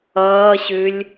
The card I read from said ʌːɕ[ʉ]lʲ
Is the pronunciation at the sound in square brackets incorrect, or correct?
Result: correct